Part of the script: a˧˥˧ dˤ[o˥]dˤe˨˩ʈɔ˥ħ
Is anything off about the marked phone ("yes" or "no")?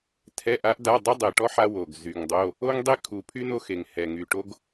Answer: no